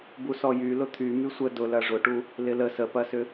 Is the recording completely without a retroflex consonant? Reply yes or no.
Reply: no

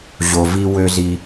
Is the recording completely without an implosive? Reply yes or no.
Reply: yes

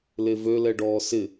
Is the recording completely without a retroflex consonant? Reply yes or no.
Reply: no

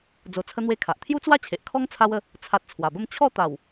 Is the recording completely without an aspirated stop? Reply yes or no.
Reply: no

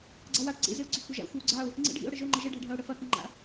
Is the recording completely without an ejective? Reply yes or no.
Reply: yes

